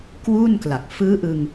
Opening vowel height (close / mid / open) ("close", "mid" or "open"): close